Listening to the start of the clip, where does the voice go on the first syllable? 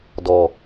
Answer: low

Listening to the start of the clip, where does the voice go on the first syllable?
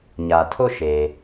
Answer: low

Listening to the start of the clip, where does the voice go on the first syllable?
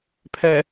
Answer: low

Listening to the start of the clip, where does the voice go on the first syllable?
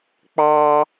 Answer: high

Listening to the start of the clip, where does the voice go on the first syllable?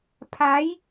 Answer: rising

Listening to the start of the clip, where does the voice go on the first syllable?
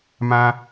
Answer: high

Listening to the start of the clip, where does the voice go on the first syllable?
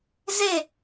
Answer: falling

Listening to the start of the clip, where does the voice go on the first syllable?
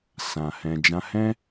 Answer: low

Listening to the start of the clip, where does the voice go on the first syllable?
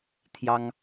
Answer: high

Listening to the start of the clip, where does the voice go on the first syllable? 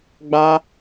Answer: high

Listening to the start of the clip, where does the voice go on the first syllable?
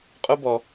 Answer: high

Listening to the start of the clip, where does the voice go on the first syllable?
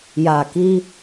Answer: low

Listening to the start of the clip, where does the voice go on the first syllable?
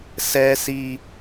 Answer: high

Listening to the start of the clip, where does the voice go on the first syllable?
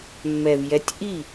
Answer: low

